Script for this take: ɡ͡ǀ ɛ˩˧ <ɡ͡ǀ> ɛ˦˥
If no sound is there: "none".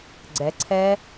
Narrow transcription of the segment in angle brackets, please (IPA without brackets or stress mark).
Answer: ǀʰ